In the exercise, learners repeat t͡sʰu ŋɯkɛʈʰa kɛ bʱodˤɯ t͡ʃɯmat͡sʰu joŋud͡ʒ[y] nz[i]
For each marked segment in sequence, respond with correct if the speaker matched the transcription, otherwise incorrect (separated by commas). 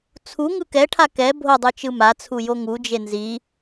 incorrect, correct